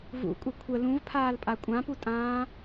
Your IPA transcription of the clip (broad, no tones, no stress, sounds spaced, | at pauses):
v ṵ kʷʼ ə kʷʰ ə l ũ v pʰ aː l pʼ a kʷʼ ã p u tʼ ãː